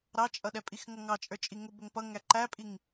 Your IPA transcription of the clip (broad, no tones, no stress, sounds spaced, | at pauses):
ɾ ɑ t͡ʃʼ ʌ ɗ ɛ pʼ i x ŋ ʌ ŋ ɑ t͡ʃʼ ə˞ t͡ʃʼ i ŋ ʊ b ʊ ŋ p ʌ ŋ æ ǃ æ pʼ i ŋ